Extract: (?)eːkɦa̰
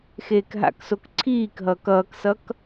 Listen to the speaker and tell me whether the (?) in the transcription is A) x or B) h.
A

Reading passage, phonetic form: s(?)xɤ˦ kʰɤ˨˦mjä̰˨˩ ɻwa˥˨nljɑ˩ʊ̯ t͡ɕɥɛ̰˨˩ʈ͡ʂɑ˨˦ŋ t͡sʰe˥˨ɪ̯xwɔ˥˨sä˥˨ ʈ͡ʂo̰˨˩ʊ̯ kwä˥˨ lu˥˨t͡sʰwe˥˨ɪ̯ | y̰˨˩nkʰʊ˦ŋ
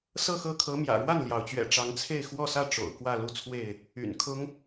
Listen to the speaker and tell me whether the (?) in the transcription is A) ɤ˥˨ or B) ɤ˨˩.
A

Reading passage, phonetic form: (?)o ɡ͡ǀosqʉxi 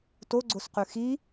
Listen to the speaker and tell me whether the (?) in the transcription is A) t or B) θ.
A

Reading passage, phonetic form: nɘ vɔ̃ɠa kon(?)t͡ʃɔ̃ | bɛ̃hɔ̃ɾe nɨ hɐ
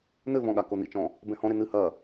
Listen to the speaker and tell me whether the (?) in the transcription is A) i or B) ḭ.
B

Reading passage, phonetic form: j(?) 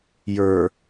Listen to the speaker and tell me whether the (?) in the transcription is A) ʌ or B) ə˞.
B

